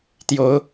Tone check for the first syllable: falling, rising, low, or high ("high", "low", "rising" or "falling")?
rising